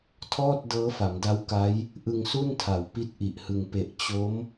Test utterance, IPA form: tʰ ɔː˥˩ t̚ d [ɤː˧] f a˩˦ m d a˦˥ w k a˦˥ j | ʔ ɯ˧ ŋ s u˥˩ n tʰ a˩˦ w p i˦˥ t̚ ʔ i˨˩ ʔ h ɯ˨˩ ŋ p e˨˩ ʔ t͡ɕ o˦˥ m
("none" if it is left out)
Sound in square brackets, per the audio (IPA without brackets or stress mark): ɤː˦˥